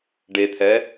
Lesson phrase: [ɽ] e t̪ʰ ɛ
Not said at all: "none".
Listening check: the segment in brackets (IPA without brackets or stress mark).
ɖ